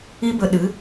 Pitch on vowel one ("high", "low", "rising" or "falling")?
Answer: high